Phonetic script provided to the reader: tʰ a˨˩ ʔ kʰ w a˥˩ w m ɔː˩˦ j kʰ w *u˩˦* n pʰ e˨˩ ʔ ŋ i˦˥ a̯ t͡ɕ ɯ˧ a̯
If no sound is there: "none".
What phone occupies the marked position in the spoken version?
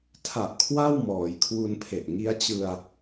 u˧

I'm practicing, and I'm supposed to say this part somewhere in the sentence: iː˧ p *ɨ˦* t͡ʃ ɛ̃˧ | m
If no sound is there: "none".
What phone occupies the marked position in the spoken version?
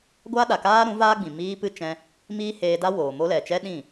ɨ˦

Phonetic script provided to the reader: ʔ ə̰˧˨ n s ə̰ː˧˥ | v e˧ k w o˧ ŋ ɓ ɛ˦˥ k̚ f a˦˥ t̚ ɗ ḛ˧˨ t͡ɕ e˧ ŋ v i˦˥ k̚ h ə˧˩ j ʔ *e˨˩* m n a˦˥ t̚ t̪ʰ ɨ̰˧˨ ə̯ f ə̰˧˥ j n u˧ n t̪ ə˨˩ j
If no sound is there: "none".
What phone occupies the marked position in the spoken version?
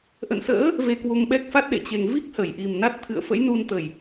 i˨˩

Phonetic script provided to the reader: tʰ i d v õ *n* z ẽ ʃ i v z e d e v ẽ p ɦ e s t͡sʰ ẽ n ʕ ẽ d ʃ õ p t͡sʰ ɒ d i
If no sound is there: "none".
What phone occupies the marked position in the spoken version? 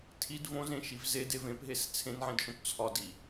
none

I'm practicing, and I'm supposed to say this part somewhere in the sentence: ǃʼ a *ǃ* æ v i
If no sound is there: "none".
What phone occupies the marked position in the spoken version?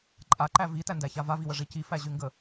ǃ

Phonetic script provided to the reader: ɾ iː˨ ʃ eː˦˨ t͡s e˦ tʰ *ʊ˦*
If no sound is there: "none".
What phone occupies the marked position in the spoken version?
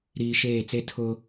ʊ˦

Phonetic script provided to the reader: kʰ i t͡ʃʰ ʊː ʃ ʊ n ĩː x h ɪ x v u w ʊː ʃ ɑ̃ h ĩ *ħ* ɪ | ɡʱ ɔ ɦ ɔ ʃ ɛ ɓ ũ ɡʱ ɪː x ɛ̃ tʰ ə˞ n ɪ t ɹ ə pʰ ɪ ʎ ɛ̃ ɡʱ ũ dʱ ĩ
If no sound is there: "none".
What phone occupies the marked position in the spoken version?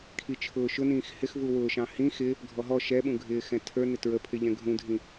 x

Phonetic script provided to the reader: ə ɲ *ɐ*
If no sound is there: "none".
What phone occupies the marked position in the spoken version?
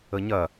ɐ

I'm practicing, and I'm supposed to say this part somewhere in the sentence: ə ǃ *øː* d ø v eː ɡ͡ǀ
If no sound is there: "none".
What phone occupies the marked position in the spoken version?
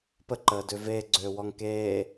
əː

